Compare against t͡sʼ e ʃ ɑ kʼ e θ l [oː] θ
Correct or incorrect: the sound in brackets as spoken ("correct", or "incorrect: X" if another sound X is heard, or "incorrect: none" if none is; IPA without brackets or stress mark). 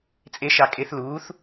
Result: incorrect: uː